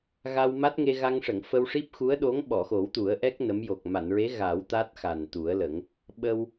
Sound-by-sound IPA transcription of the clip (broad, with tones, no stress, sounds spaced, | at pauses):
ɣ a˧ w m a˦˥ t̚ ŋ e˧ ɣ a˧ ŋ ʂ ə˨˩˨ ŋ f ə˧ w ʂ i˦˥ p̚ x u˧˥ ə̯ ɗ o˧˥ ŋ ɓ ɔ˨˩˨ x o˨˩˦ w t̪ u˨˩˦ ə̯ ʔ ɛ˦˥ k̚ n ə˧˥ m j o˨˩ k̚ m a˨˩˨ n ɹ e˧˥ ɣ a˨˩˦ w t̪ a˦˥ t̚ x a˨˩ n t̪ u˨˩˦ ə̯ l ə˨˩˦ ŋ | ɓ ə˧ w